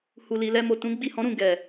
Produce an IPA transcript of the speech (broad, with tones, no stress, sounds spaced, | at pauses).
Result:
h u˨ l i˨ l ɛ˧ m o˨ t ũ˨˦ ɡ͡b i˦˨ h ɔ̃˨˦ ɾ ũ˦˨ ɡ ɛ˨